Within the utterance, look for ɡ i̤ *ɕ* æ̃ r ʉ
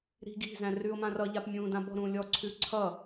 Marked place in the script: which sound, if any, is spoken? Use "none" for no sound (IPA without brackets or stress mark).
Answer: z